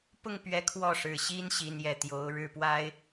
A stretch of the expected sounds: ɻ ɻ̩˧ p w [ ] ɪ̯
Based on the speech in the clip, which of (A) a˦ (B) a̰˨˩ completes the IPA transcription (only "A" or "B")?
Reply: A